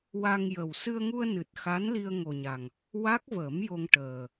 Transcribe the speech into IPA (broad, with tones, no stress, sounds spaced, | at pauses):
w a˧ ŋ j ə˨˩ w s ɨ˧ ə̯ ŋ u˧ ə̯ n ɨ˨˩ t̚ x a˧˥ n l i˧ ə̯ ŋ o˨˩ ɲ a˨˩ ŋ | w a˦˥ k̚ v ə˨˩˦ m j o˧ ŋ ʈ əː˨˩